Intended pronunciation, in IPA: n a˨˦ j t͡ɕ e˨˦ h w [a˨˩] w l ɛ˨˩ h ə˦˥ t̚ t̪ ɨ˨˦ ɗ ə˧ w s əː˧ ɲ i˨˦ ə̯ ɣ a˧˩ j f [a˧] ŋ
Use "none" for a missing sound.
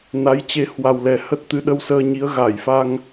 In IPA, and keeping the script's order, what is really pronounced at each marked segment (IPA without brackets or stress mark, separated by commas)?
a˨˩, a˧